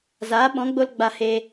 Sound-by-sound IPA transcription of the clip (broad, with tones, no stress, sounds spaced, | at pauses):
z aː˨˦ ɓ ɔ̃˨˦ ɡ͡b o˧ l ɡ͡b a˧ h e˧